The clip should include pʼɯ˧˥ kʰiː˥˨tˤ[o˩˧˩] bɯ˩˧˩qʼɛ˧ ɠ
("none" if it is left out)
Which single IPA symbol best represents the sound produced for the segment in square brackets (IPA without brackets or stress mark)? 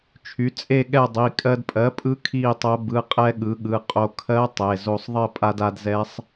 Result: o˧˥